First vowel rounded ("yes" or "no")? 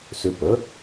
yes